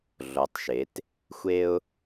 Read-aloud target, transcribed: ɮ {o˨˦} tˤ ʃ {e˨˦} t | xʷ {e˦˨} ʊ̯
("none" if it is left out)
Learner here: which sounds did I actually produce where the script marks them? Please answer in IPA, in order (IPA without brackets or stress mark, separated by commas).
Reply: o˨˦, e˨˦, e˦